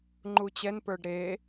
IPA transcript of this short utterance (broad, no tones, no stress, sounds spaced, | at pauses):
ŋ͡ǃ u t͡ɕ ɛ n p ə˞ ɖ ɾ e